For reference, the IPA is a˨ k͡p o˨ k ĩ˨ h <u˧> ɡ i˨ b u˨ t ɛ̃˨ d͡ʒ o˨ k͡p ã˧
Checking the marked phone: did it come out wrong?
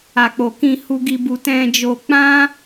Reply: yes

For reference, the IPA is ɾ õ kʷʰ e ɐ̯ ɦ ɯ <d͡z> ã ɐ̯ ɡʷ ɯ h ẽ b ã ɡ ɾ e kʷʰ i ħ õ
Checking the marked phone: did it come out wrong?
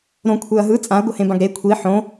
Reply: yes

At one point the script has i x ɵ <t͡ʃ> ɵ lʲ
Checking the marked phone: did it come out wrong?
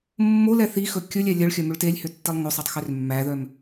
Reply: yes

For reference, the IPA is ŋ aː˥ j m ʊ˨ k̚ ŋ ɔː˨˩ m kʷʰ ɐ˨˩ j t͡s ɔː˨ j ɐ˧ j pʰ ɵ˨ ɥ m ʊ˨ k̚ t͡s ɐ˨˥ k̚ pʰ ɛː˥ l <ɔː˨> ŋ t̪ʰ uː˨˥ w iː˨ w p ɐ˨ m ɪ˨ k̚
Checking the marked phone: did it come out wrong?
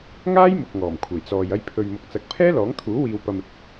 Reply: yes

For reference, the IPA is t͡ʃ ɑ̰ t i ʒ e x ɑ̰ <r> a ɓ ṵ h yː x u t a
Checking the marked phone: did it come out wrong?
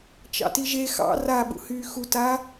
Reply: no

